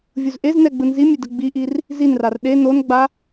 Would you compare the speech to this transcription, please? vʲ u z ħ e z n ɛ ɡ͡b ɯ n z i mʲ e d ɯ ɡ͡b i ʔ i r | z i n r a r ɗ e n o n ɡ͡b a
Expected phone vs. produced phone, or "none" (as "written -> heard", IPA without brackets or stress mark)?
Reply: ħ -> ʔ